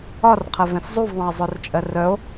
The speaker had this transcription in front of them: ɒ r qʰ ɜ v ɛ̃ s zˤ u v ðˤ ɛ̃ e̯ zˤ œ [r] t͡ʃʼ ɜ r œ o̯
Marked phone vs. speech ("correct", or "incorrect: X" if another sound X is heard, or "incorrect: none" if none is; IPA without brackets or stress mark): correct